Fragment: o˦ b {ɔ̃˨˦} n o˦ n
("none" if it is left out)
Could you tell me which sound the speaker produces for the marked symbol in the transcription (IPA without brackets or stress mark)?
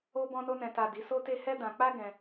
ɔ̃˦